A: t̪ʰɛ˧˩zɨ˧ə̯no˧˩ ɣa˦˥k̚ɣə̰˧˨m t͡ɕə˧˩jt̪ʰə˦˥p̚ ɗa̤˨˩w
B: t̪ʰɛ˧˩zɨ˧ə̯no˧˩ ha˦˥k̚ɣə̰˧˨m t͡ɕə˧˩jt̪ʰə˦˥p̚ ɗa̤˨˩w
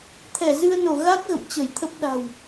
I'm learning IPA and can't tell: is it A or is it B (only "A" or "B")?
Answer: A